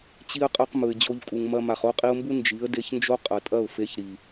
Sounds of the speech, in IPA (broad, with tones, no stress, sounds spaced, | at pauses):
t͡ɕ i˦ ə̯ qʼ ɐ˦ q m ɵ˨ ɪ̯ d͡ʑ o˧ ʎ kʼ u˨ ŋ m ɐ˧ m a˨ χ o˦ qʼ i˧ ʊ̯ m b u˦ n d͡ʒ i˨˦ ə̯ d e˧ ç n d͡ʒ o˦ qʼ ɐ˨ tʼ ɐ˦˨ ʊ̯ f e˧ ç ɾ i˨